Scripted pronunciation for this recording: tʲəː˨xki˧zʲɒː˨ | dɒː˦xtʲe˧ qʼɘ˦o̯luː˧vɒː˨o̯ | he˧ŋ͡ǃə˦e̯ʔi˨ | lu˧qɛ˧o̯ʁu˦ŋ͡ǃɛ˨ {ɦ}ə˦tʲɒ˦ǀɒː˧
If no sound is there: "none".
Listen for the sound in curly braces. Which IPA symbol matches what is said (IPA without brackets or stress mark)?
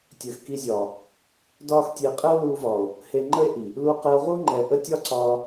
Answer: ʔ